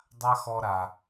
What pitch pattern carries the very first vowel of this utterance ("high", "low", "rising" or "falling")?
high